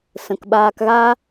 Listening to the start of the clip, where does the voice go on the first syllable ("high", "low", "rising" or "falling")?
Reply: low